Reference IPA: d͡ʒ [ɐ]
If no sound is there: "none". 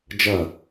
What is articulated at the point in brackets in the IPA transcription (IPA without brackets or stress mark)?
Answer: ɐ